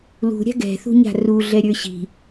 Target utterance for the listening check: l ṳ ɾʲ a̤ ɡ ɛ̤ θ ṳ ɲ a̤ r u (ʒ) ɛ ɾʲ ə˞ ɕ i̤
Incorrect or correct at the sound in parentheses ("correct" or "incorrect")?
incorrect